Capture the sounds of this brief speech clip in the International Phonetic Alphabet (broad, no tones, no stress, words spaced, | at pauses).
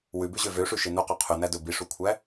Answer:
wʉbʉʑø vøʂʉʃe nuqo qʰʉnædɵ biʂukʷʰæ